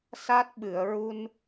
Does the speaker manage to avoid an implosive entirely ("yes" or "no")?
no